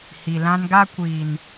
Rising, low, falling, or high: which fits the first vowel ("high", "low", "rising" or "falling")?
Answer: low